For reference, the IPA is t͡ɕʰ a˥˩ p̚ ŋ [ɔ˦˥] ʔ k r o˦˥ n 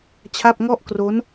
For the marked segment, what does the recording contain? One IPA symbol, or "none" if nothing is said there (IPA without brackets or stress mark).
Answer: ɔ˦˥